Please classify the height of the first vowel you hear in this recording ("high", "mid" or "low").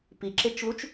high